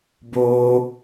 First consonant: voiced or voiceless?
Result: voiced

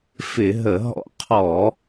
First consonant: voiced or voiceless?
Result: voiceless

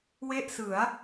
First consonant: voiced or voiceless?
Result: voiced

